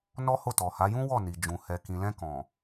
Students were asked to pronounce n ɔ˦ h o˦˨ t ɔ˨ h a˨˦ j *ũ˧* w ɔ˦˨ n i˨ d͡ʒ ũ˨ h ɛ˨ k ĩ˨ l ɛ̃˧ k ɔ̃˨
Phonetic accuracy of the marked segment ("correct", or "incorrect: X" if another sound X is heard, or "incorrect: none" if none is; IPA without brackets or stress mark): incorrect: ũ˦